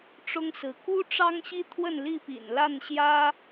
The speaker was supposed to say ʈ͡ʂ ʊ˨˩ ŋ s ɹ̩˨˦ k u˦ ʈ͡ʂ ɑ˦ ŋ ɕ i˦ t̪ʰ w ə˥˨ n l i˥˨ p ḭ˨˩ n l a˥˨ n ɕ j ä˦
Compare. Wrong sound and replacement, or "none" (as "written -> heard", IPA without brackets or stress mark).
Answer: ʊ˨˩ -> ʊ˦